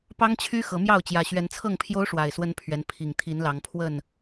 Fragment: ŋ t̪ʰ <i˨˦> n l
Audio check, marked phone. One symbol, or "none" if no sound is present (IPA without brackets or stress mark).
i˨˦